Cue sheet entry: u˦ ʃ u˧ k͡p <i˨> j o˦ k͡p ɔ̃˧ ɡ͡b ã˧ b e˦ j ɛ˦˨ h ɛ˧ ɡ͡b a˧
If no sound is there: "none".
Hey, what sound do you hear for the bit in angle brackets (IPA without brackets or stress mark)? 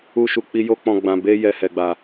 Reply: i˦